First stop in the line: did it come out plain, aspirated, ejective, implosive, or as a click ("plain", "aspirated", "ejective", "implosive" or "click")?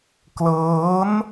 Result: plain